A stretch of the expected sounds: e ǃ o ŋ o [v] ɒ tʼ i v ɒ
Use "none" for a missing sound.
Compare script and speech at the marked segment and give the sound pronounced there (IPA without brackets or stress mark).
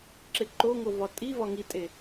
v